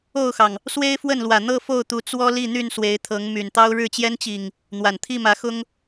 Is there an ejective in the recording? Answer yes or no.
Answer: no